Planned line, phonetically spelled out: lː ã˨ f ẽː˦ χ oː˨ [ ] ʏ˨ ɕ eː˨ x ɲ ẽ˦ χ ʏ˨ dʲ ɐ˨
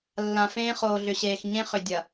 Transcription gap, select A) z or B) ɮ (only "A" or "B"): B